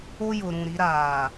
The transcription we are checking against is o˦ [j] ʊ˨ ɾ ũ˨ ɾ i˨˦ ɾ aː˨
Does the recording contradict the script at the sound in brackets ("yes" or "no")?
no